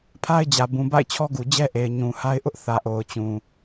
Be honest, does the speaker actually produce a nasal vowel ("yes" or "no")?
yes